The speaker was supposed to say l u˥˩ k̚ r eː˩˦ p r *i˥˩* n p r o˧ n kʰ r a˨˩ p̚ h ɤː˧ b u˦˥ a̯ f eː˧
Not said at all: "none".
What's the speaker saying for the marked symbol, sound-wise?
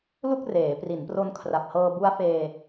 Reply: i˩˦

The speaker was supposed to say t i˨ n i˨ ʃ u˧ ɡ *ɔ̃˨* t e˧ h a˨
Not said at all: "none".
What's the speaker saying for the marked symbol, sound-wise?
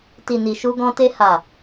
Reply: ɔ̃˧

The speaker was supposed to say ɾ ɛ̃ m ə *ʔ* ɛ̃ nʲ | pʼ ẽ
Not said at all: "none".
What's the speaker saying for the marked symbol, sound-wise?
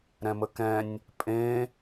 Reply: k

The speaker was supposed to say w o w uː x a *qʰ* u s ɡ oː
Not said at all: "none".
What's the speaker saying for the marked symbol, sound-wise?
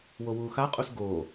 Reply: qʼ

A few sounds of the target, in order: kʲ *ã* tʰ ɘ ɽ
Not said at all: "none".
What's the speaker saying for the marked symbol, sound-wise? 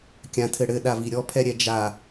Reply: ã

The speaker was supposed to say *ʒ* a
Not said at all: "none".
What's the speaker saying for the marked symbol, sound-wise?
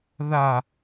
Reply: ð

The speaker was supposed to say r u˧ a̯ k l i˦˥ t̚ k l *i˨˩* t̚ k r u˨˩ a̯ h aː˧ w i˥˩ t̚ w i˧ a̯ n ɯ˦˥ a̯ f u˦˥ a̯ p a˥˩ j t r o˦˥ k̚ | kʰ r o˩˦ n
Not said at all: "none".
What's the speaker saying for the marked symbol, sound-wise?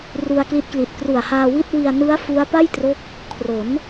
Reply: i˨˩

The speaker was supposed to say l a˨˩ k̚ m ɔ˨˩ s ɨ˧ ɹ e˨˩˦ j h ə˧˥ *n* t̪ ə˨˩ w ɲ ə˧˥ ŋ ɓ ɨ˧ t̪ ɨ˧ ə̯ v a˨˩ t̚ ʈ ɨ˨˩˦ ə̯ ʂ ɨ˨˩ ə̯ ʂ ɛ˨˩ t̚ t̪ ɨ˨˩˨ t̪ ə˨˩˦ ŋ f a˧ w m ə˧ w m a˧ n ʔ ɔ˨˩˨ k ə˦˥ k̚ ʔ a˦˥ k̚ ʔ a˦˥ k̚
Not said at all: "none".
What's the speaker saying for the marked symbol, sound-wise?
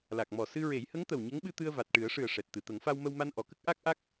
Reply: ŋ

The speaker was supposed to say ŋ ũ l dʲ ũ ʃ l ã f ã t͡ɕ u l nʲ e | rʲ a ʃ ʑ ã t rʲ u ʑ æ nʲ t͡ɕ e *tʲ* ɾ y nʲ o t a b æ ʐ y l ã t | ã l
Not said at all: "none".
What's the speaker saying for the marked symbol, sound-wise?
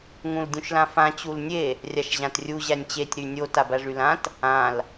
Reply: tʲ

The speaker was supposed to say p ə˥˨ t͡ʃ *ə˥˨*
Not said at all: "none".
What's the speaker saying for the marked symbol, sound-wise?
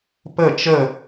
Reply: ə˥˨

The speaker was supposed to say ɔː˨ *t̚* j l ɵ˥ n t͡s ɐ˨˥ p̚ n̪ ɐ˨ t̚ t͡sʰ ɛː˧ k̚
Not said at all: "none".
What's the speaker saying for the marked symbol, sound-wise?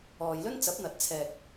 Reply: none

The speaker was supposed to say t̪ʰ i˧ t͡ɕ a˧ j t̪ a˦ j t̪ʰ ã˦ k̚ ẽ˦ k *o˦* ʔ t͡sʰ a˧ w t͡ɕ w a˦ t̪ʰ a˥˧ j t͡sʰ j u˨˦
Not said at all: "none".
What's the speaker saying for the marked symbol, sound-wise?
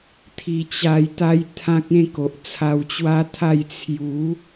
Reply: o˨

